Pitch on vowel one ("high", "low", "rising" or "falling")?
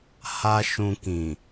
high